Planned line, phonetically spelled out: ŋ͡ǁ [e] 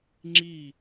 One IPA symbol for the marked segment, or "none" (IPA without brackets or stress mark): i